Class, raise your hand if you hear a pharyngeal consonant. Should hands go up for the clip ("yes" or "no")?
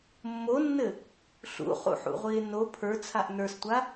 yes